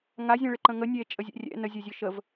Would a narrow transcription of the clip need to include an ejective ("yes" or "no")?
yes